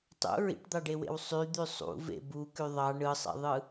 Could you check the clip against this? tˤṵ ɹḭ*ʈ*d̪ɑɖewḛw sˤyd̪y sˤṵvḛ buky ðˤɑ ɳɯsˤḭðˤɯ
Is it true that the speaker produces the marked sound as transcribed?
yes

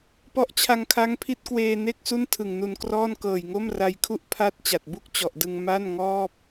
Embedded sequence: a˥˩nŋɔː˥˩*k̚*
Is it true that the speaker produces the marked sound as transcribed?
no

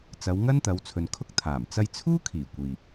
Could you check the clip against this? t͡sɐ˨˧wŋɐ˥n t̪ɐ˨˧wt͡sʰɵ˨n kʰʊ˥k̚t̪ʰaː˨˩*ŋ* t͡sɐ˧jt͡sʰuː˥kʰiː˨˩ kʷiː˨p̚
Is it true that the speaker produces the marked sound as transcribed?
no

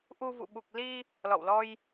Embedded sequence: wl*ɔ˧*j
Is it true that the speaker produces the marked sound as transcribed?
yes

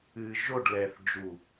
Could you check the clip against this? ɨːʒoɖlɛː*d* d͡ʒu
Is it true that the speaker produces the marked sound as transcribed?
no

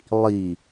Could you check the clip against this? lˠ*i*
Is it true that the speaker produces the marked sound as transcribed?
yes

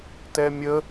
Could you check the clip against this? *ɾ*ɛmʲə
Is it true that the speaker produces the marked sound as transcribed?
no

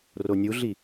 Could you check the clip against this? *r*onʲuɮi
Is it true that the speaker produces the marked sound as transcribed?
yes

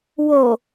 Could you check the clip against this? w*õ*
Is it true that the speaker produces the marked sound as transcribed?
no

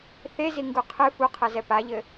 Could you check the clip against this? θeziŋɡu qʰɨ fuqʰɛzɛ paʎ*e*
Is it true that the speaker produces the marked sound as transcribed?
no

